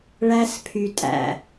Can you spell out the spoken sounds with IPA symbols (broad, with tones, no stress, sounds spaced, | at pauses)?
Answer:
ɭ æ˦ s pʰ y˨ tʼ æ̰˨